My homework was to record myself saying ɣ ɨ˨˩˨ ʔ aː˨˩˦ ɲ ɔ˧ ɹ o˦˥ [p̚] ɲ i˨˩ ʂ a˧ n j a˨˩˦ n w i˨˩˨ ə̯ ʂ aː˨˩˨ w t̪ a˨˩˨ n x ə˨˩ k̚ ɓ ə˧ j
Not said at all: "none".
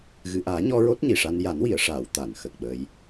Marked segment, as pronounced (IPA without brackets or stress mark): t̚